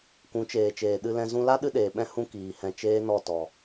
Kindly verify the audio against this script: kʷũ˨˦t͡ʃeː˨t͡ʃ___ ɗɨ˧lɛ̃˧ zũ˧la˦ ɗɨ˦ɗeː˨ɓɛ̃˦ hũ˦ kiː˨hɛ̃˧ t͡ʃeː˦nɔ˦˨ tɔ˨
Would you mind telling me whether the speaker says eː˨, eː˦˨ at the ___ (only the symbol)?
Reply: eː˨